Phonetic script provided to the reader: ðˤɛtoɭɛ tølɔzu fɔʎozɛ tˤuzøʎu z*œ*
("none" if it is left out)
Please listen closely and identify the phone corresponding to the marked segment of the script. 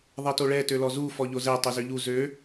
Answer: ø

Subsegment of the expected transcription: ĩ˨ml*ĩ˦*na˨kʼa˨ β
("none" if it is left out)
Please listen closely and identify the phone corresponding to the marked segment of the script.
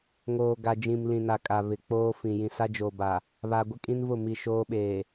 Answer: ĩ˨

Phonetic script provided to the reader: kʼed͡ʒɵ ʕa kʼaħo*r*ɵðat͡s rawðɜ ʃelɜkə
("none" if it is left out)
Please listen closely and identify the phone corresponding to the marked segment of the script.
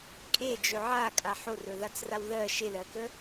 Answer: r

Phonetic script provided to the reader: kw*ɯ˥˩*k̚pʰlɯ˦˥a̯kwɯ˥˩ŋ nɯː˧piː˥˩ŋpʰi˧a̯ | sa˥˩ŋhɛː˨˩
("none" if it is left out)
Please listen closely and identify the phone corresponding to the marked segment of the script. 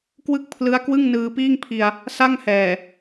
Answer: ɯ˥˩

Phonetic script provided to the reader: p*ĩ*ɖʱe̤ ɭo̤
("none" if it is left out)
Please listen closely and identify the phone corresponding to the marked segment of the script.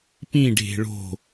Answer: ĩ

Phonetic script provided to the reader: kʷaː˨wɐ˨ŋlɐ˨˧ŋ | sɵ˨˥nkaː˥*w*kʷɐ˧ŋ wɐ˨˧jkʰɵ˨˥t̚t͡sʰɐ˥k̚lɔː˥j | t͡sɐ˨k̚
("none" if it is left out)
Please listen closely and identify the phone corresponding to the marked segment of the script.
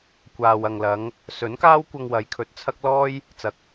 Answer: w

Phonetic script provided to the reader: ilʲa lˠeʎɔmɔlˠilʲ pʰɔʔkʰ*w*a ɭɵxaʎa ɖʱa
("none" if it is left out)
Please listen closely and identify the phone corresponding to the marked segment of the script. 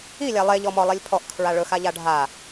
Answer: ɹ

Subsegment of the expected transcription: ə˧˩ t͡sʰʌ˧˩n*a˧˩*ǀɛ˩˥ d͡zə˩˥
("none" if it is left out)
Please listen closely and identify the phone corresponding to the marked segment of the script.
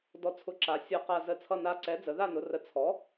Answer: a˧˩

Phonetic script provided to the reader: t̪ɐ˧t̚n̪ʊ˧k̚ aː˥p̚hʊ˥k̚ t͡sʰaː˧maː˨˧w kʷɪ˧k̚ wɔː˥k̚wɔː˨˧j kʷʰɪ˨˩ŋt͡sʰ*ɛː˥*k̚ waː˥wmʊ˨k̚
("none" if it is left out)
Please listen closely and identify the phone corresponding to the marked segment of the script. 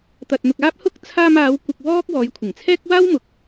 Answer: ɛː˥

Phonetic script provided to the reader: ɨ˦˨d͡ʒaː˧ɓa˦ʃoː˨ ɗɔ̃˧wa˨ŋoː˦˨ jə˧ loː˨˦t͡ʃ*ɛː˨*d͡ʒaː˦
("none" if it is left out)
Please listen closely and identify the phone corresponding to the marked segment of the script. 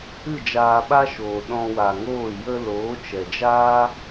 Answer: ɛ˨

